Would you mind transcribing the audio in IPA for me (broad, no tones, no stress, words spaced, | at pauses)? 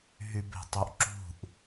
ɦybe̤tˤoʔǁṳʔ